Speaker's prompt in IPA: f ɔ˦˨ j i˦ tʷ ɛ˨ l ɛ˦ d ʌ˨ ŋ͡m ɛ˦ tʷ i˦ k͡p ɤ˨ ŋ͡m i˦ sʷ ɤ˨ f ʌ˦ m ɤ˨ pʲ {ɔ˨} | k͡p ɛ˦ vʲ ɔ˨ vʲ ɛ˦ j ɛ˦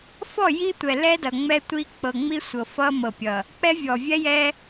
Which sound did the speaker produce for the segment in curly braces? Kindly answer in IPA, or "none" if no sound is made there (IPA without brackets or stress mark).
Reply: ʌ˨